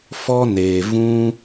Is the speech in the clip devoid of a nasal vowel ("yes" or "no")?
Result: no